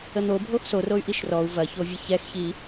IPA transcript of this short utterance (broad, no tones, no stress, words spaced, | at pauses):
ən̪o bʱoxsoroy̯ ʔiʃrɔu̯ vɐçovʲə çɛxçi